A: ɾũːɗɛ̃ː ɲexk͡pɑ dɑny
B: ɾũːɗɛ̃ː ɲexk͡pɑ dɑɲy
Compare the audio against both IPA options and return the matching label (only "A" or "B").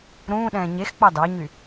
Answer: B